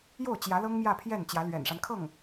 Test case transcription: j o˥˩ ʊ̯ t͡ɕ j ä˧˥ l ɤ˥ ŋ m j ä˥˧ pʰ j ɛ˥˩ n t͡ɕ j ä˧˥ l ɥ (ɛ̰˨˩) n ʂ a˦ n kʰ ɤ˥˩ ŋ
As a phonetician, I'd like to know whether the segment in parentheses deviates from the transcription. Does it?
no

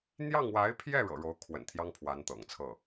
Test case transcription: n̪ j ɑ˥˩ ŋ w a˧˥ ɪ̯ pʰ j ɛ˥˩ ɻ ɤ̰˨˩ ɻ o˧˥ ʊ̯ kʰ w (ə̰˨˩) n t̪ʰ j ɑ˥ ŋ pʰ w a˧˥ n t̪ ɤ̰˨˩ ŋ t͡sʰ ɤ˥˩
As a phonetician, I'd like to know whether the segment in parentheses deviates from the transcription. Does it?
no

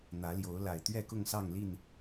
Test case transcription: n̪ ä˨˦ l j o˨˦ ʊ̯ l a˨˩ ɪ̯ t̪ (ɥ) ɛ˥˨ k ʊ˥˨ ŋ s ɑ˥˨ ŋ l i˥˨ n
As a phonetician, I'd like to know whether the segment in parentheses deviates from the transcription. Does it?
no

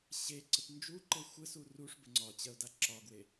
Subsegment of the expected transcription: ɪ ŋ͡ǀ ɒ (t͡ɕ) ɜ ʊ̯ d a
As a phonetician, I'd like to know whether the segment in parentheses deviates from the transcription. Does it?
no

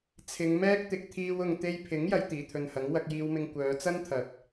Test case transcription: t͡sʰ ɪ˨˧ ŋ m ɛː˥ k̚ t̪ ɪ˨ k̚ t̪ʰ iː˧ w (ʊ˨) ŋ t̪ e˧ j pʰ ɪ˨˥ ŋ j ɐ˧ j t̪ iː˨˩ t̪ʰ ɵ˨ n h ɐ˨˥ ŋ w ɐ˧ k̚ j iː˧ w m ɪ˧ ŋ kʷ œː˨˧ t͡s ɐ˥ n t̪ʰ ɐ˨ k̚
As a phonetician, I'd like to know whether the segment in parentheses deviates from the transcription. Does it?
no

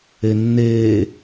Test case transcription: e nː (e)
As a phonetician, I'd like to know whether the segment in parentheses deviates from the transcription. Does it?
yes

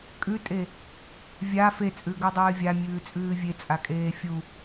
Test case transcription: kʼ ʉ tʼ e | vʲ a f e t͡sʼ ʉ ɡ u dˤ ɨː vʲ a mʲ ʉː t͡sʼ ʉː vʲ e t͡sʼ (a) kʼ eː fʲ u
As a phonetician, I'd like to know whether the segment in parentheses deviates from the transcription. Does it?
no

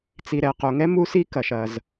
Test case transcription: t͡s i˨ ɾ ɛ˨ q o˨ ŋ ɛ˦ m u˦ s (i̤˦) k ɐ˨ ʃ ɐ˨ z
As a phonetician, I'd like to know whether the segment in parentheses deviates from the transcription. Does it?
yes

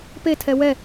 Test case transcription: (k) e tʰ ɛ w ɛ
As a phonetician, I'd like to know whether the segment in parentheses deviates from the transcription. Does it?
yes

